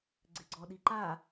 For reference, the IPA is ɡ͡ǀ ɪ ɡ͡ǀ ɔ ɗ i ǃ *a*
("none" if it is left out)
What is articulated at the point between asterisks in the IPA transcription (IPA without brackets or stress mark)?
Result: a